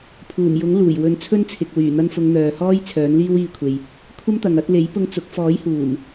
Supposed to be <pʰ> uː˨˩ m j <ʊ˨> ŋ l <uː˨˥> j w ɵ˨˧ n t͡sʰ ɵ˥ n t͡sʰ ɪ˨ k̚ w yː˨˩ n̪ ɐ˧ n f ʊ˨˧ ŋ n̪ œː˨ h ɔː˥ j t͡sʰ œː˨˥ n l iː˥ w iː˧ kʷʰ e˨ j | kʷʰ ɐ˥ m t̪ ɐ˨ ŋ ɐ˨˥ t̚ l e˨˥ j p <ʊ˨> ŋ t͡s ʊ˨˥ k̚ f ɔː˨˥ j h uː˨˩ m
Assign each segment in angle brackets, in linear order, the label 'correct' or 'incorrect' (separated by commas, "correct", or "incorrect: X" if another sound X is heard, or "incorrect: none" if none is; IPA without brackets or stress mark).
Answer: correct, incorrect: ʊ˨˥, incorrect: uː˨˩, incorrect: ʊ˧